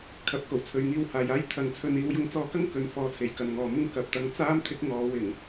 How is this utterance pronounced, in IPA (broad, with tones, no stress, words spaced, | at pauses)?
kʰɐ˧p̚ ko˨˩wt͡sʰɵ˨˧ɥ ŋiː˧whaː˨jaː˥j t̪ʰɐ˨˧ŋt͡sʰɵ˧n iː˨˧wjʊ˨˧ŋt͡sɔː˧kɐ˥ŋ kɵ˨˧n fɔː˨˧t͡sʰe˨˩j kɐ˨nŋɔː˨mʊ˥ŋ kɐ˨˥p̚t̪ɐ˧ŋ t͡saː˥mt̪ʰɪ˨˥k̚ ŋɔː˨˧wɪ˨˩ŋ